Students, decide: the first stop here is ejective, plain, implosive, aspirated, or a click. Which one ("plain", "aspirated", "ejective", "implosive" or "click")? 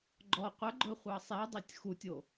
click